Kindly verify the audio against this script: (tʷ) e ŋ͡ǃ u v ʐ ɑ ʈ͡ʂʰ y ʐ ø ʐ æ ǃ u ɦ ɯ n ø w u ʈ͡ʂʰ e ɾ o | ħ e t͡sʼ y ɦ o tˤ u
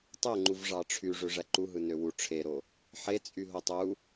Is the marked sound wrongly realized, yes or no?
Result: yes